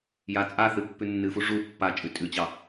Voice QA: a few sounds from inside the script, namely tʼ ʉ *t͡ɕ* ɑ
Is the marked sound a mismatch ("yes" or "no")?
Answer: no